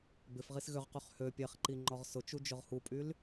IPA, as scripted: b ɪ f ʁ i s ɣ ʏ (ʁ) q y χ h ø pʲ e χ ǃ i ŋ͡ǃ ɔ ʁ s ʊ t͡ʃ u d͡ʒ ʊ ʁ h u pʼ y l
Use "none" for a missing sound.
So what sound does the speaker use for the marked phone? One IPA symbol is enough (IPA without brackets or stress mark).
ʁ